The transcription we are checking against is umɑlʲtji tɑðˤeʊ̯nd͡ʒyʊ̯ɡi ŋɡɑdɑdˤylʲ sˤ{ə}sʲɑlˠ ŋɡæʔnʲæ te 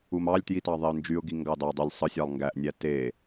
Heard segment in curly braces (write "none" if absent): ɯ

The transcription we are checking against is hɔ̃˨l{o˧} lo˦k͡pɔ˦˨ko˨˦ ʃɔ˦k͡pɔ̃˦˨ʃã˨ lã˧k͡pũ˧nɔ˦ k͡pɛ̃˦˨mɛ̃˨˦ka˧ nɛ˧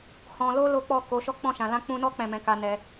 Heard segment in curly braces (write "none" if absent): o˧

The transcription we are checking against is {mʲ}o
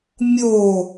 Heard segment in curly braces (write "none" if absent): mʲ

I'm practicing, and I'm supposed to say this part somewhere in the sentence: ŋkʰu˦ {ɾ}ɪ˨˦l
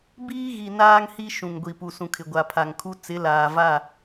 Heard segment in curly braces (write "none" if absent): t͡s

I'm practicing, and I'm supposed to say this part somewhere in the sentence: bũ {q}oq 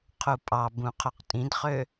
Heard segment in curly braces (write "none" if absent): qʰ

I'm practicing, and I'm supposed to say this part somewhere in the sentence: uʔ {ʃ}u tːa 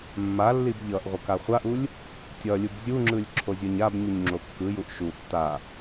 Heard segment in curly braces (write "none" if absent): ʃ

